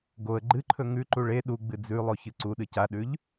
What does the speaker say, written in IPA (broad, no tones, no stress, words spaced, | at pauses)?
ɡoə̯ ɡ͡ǃɨǃʰɵ ŋʉǃu ɭe ɗuɡ͡bɨ d͡zʉlˠo çɨǀuɗɨ caɗʉʎ